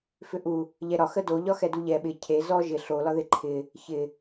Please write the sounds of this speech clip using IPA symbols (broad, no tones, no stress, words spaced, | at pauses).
fʏʔu | ʎɛɾɒ xədo ʎɒxɛduʎɛ ɓɪ cʰe zɔ ʒɪ ɬo lɒðɪǃʰɪ | çɪ